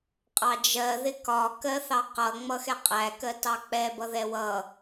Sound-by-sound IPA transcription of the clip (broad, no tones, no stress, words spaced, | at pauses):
qʼɑd͡ʒɜ ðɪkɒ kɜθɑqʌ ŋ͡mʌxɛqʼæ kɜtɑk͡pɛ bʌðɛwʌ